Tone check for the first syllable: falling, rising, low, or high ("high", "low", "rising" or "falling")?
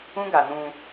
high